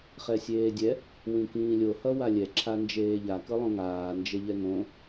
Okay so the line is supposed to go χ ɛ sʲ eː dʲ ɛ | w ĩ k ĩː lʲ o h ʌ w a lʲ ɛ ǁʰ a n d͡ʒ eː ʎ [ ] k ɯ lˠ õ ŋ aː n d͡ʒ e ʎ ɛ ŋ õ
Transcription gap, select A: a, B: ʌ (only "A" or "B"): A